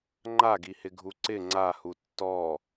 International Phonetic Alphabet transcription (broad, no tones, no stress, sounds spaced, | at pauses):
ŋ͡ǃ a ɡ i h ɪ ɡʱ u ǀ ɪ ŋ͡ǀ a h u tː ɔ